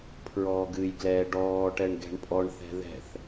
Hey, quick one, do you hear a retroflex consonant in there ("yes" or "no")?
yes